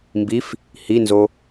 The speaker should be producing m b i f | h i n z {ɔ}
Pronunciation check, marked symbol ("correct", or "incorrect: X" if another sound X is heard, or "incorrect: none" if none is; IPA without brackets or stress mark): incorrect: o